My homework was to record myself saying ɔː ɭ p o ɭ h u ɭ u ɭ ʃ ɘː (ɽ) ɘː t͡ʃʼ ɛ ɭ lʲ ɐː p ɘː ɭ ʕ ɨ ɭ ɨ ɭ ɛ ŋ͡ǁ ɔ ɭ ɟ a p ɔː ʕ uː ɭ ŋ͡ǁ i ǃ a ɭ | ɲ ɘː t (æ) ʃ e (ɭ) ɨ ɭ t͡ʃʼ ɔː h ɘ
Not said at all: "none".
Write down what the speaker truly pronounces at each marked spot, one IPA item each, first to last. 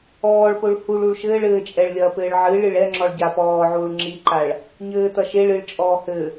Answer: ɭ, ɐ, ɭ

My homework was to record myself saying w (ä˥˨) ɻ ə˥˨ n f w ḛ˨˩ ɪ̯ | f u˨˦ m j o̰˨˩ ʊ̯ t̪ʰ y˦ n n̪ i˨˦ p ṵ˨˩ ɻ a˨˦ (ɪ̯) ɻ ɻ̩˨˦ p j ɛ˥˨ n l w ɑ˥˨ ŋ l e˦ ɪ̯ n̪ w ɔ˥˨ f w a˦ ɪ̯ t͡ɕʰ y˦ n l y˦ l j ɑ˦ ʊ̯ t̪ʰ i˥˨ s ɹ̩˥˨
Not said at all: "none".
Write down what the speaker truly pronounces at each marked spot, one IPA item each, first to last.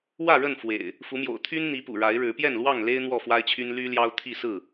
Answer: ä˥˨, ɪ̯

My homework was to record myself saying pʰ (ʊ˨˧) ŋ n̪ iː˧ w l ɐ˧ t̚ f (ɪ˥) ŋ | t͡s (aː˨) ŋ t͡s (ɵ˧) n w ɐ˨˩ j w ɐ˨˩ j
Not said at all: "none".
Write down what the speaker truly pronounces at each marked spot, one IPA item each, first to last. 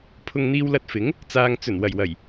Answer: ʊ˨, ɪ˨˥, aː˨, ɵ˨˩

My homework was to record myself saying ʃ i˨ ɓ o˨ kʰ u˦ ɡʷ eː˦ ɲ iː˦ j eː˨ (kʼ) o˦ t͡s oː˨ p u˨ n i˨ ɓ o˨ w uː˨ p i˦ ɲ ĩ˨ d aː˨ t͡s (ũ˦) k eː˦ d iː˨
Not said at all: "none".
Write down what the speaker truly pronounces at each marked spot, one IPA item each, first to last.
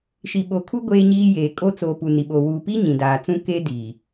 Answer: kʼ, ũ˦

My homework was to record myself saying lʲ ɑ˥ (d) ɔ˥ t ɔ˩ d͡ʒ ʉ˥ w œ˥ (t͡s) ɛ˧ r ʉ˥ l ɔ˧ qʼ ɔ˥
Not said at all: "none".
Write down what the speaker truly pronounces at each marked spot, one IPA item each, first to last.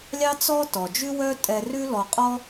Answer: t͡s, tʼ

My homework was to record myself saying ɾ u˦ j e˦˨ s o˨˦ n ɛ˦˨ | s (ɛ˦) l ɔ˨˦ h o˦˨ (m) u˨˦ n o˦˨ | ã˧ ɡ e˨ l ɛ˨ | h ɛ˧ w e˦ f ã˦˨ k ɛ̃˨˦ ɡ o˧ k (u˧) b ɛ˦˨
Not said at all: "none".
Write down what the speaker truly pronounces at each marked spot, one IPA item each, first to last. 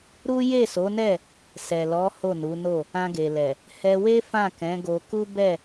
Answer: ɛ˨, n, u˦

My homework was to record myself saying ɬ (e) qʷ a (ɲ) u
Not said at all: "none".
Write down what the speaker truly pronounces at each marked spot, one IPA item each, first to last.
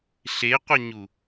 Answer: e, ɲ

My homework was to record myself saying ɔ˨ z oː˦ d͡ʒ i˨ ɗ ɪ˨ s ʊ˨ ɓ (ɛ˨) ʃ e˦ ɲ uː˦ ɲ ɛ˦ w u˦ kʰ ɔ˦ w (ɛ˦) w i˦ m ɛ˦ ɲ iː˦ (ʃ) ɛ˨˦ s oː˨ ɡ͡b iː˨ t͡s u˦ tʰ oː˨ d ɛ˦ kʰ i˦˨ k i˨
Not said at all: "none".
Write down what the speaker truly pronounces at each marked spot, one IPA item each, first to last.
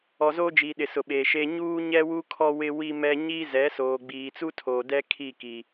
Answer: e˨, ɪ˦, z

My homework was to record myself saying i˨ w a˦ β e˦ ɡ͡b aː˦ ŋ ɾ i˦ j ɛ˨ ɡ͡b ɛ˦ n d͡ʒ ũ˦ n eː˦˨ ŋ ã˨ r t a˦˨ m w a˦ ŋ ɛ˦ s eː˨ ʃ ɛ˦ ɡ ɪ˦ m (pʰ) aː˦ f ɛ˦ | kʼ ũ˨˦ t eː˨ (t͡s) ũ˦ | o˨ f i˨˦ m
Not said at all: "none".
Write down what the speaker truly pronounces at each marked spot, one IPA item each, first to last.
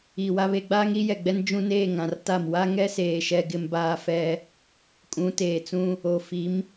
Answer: b, t͡s

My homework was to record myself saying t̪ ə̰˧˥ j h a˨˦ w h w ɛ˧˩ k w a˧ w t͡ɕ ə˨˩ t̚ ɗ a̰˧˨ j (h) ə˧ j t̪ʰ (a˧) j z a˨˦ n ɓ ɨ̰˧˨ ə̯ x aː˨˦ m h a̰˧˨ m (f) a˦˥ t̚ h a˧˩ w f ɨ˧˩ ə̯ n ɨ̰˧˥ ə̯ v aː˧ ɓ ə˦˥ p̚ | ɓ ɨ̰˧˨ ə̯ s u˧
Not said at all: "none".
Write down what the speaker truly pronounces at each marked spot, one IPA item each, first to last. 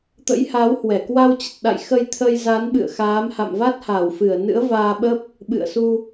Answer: x, ə˧, v

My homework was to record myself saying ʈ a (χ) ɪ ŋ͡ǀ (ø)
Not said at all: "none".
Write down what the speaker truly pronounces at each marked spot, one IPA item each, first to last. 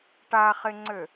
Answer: χ, ø

